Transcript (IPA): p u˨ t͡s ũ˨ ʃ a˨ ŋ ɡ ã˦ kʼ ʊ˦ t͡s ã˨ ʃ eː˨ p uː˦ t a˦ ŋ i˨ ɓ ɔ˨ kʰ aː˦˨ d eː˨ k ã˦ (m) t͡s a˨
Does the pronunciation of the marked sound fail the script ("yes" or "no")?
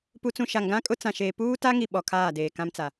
no